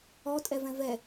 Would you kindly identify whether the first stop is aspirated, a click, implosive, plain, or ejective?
ejective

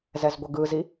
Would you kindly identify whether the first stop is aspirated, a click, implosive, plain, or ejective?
plain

